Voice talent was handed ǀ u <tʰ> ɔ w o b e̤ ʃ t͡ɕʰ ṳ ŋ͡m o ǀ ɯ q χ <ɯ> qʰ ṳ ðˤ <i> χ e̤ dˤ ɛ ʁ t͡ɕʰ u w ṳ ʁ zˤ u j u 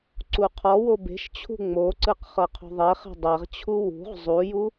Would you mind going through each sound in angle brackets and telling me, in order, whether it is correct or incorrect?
incorrect: qʰ, incorrect: ɤ, incorrect: e

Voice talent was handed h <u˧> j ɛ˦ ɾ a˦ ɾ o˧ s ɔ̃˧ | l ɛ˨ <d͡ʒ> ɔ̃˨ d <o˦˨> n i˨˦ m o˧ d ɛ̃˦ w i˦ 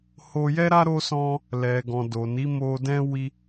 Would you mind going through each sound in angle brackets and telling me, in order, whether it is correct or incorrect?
incorrect: o˧, incorrect: ɡ, incorrect: o˨

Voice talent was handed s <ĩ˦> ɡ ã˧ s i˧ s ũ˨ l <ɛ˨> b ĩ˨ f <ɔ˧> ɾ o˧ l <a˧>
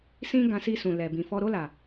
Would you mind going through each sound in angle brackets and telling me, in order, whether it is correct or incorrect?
correct, correct, correct, incorrect: a˨

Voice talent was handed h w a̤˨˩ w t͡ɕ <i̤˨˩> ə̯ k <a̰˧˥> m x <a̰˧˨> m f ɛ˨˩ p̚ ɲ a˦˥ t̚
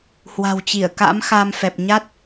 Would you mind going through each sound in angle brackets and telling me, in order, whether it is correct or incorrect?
incorrect: i˧˩, correct, incorrect: a˧

